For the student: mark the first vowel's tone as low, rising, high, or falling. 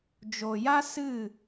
low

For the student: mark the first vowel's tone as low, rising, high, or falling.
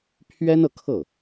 high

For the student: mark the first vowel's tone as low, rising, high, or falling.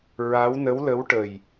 rising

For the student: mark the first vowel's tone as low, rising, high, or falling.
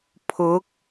rising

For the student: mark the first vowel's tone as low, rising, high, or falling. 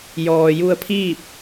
low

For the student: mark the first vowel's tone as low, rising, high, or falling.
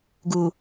low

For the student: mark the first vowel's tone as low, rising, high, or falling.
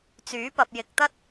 rising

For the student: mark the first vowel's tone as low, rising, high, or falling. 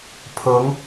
rising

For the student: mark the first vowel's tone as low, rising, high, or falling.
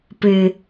low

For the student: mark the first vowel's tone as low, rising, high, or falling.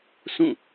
falling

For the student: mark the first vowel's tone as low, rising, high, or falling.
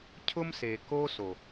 high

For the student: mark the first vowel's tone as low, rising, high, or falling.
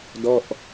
falling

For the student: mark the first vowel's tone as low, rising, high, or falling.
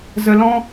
low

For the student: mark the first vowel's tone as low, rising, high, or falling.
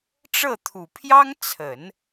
falling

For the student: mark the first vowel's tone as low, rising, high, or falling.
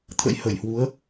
rising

